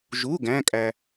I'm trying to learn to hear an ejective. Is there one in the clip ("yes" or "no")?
yes